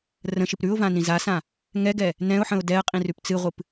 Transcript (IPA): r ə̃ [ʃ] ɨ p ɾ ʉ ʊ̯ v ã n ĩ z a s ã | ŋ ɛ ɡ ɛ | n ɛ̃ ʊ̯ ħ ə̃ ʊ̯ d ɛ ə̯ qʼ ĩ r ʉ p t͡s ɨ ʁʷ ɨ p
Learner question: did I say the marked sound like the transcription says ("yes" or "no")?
yes